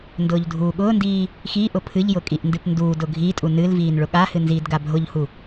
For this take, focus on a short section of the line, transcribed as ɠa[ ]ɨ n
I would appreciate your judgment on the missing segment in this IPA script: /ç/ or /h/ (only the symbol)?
h